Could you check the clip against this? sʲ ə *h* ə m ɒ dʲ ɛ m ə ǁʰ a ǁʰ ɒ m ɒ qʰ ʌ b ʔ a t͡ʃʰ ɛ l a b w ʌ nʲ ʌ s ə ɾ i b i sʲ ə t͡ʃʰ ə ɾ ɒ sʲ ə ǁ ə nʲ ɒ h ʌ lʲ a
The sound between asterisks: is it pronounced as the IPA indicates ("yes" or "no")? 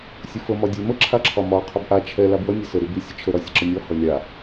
no